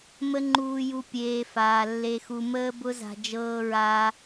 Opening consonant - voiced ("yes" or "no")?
yes